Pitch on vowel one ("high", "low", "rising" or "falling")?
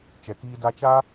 low